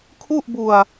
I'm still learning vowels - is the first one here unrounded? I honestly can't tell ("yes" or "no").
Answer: no